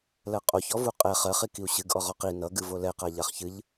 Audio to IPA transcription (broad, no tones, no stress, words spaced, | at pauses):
lɜqʼoçɔvu qʼɛ χɜχ ikiu̯ɕɨɡ ʔɔʁɔqi nʌɡɨ volɛqa ʎaχçɨʎ